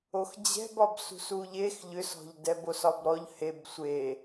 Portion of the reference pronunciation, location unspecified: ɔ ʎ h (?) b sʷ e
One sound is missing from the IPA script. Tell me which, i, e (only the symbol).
e